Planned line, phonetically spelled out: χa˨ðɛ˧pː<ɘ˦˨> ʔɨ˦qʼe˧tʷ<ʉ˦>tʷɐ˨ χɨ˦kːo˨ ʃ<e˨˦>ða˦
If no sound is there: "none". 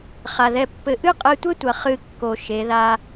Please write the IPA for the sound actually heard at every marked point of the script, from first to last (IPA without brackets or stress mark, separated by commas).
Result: ɘ˧, ɘ˦, e˨˦